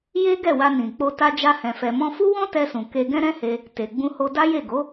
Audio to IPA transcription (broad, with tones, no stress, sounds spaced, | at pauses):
j e˦ ɡ ɛ˦˨ w a˧ n ĩ˨ k͡p o˧ t a˧ d͡ʒ a˧ h ɛ̃˨ f ɛ˨ m ɔ̃˧ f u˦ w ɔ̃˦ t ɛ˧ s ũ˨ k e˧ ɡ ɛ̃˦ ɾ ɛ̃˦ h e˧ | t e˨ ɡ͡b ũ˧ h o˧ d a˦ j e˦˨ ɡ o˨˦